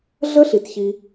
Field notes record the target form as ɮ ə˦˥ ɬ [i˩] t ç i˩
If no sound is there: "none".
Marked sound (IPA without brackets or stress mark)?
i˩